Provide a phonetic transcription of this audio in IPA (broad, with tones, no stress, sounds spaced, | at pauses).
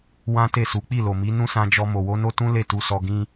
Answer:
w ã˦ t e˦˨ s u˨˦ k͡p i˦˨ l o˨ m i˨˦ n ũ˦ s ã˧ d͡ʒ ɔ˧ m o˨ w o˨˦ n o˦ t ũ˦ l e˦˨ t u˨ s ɔ˨ ɡ ĩ˧